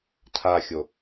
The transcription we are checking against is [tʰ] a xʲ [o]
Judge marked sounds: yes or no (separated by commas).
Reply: yes, yes